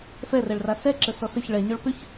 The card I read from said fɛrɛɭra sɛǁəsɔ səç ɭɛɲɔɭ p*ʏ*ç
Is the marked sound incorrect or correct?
correct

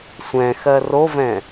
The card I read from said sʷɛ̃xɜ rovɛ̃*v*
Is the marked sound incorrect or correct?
incorrect: none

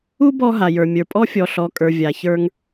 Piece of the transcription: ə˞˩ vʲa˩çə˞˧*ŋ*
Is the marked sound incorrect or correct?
correct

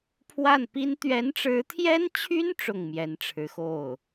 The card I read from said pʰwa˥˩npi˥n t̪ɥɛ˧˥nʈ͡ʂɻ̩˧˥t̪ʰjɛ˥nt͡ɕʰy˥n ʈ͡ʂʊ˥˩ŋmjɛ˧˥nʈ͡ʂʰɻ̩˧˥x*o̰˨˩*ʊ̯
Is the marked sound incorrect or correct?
incorrect: o˥˩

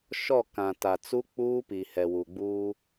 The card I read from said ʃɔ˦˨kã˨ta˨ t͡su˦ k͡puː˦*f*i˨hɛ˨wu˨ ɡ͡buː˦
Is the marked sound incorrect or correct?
incorrect: p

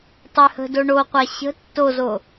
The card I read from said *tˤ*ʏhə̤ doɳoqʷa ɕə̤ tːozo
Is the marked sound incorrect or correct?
correct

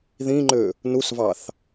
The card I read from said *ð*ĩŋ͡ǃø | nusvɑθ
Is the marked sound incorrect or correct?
correct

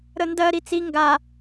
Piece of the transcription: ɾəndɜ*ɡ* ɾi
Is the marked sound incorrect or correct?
incorrect: none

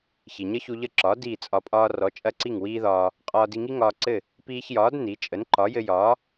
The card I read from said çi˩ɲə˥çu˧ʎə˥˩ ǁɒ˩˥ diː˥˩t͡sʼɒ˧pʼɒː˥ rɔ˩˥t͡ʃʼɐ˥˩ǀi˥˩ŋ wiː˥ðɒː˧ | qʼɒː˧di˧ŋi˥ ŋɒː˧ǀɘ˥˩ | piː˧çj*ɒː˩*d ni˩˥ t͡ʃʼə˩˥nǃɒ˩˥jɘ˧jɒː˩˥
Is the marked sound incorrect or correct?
incorrect: ɒː˩˥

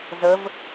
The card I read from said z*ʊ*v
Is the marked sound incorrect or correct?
incorrect: ə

